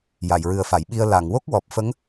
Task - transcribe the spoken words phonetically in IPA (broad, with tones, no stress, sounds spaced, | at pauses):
j a˨˩˨ j ɹ ɨ˨˩ ə̯ f a˨˩˨ j ɓ i˧ ə̯ l a˨˩˨ ŋ w o˦˥ k̚ w ɔ˨˩ p̚ f ə˧˥ ŋ